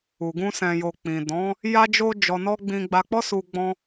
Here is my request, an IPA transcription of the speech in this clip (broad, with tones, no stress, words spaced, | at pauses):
u˨ɡũ˧ sɛ̃˨jo˨ k͡pĩ˨dɔ̃˨˦ | ja˧d͡ʒo˧ d͡ʒɔ˧nɔ˦ ɡ͡bĩ˧ ɡ͡ba˧k͡pɔ˦su˧ ɡ͡bɔ̃˧